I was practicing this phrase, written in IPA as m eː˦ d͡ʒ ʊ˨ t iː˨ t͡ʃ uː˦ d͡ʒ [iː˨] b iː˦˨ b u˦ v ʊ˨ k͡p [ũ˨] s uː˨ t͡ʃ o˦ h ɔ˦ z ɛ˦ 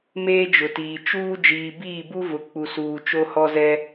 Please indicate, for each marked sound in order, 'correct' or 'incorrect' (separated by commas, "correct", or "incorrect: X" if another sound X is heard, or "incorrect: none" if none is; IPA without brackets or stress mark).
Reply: correct, incorrect: u˨